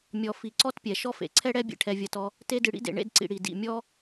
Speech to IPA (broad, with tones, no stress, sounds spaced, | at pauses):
mʲ ɔ˨ f i˨ ǀ ɔ˥ t pʲ ɛ˩ ʃ ɔ˦ f ḛ˩ ǀʰ ɛ˦ ɽ ɛ˦ bʲ ḛ˨ ʈʰ ɛ˨ vʲ ɐ˨ t ɔ˨ | t e˦ d ɨ˨ ɽ ḭ˥ d ḛ˨ ɳ ḛ˥ d ǀ ḭ˨ ɽ i˩ d ḭ˩ mʲ ɔ˥